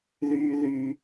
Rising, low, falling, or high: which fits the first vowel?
high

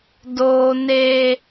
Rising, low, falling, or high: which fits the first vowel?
high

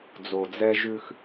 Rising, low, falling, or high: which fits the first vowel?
low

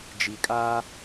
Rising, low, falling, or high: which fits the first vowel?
low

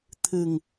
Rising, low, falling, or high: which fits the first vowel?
low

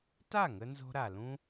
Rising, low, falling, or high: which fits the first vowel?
falling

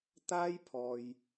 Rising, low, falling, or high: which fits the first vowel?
high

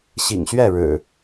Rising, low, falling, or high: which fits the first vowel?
low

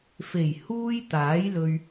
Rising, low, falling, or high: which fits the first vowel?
low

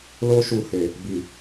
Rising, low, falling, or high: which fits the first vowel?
high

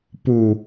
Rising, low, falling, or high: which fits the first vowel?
low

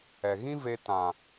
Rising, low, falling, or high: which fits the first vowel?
low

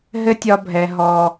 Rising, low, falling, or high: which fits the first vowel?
high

